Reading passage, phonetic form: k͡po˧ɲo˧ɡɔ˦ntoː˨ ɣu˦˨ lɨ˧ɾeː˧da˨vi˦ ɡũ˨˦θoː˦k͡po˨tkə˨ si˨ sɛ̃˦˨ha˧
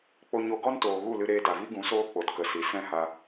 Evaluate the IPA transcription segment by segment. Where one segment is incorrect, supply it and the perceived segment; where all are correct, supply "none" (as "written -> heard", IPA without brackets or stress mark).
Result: θ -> s